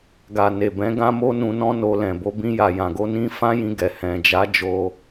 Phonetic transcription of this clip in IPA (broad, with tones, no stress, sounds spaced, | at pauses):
ɡ a˨ n e˨ b ɛ̃˨˦ ɡ ã˦ m o˦ n ũ˧ n ɔ̃˦ n o˧ l ɛ̃˨ b o˨˦ b ĩ˧ j a˨ j ã˨ ɡ o˧ n ĩ˧ f ã˦ j ĩ˧ ɡ ɛ˨ h ɛ̃˨ d͡ʒ a˨˦ d͡ʒ o˧